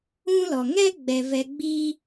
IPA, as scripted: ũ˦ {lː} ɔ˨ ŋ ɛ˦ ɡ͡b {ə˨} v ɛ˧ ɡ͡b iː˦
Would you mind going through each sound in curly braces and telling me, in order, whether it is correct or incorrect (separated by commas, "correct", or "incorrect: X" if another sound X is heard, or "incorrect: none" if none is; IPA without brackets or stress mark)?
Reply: incorrect: l, incorrect: ɛ˨